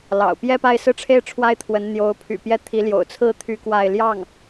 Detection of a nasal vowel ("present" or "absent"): absent